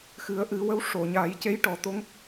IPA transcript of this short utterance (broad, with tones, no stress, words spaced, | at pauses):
xɨ˨˩˦ə̯ʔɨ˨˩˦wə˧˥w ʂo˨˩˨ɲa˨˩˦j ce˧˥j ʈɔ˨˩˦t̪o˧˥ŋ